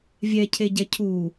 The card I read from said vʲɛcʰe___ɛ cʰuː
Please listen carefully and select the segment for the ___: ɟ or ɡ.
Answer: ɟ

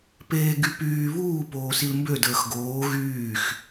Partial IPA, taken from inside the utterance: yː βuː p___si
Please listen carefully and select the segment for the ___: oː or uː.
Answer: oː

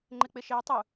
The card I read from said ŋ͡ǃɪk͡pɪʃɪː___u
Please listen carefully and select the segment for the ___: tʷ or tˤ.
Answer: tˤ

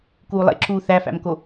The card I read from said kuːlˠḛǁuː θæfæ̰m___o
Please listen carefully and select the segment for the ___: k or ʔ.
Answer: k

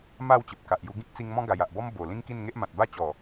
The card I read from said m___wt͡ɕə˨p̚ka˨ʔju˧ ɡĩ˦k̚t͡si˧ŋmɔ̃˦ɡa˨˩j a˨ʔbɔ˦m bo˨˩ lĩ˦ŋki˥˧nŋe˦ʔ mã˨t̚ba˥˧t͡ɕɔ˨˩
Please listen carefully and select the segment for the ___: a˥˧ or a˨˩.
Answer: a˥˧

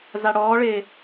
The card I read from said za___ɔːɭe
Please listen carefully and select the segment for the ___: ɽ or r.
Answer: ɽ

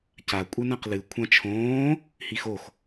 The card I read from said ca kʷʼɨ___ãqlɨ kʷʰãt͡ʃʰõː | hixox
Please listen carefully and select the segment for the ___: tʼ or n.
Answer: n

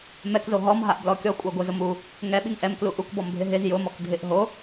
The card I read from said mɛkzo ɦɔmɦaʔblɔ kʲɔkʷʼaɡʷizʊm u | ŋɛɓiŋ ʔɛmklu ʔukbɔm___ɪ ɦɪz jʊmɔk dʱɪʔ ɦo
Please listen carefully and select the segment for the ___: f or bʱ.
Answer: bʱ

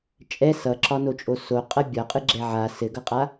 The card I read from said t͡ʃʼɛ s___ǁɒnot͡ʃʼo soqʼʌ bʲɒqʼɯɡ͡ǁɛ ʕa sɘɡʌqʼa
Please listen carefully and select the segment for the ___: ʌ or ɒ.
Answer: ʌ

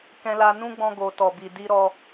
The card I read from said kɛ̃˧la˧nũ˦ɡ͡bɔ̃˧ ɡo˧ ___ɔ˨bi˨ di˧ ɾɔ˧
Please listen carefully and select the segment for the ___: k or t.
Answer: t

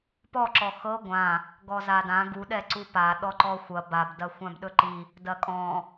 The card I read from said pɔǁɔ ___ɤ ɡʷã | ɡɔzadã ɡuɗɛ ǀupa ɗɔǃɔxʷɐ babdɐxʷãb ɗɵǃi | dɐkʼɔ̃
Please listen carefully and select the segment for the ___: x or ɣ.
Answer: x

